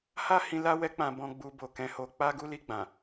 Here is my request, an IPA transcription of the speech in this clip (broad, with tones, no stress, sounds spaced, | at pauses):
h a˦ h ĩ˧ l a˦ w ɛ˦ k͡p ã˧ b ɔ̃˧ ɡ͡b u˧ b o˨ k ɛ̃˧ h o˧ k͡p a˦ ɡ u˦ l i˧ ɡ͡b ã˨